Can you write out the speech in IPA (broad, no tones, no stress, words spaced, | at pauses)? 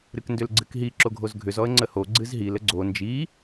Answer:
ɾɨkndʏlɡ͡ǀɨkɦi ǁoɡʱozɡʱʏz ɔə̯ŋ͡ǀəho ɡ͡ǀɨzɦil əɡ͡ǀo nd͡ʒi